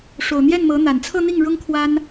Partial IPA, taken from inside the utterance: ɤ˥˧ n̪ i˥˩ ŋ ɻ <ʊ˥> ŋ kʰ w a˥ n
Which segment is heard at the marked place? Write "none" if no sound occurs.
ʊ˥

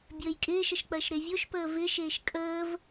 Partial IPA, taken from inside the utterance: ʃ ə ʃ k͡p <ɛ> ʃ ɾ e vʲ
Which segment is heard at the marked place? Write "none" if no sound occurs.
ɜ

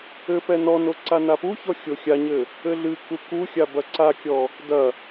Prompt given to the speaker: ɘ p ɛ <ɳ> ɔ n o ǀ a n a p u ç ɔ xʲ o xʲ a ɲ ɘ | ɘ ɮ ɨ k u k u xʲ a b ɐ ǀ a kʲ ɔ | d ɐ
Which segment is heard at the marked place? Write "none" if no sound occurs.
n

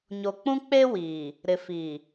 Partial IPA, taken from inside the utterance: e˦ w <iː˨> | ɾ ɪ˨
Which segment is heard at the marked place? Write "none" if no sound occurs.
iː˨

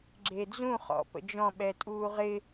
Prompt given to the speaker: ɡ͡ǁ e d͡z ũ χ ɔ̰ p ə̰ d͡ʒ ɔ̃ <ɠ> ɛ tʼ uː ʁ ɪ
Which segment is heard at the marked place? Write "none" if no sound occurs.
ɓ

